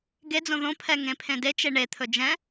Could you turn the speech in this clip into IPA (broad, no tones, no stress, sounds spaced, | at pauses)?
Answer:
ɡ e d͡z õ ð õ pʰ ɛ ŋ ẽ pʰ ẽ d e t͡ʃ e ɳ e t̪ʰ ɵ d͡ʒ ɛ̃